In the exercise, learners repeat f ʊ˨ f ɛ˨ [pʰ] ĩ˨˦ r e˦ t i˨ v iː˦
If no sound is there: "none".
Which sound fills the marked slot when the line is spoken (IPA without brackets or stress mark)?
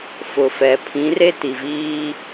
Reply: pʰ